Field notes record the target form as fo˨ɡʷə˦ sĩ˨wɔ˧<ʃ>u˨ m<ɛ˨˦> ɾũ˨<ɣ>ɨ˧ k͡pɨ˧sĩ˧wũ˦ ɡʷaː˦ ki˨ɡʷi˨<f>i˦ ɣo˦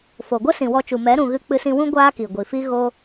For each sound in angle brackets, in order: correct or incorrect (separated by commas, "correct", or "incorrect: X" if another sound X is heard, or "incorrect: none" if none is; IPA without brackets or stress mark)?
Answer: incorrect: t͡ʃ, correct, correct, correct